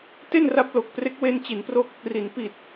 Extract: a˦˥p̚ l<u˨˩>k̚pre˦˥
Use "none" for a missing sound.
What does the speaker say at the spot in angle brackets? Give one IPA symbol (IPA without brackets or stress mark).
o˨˩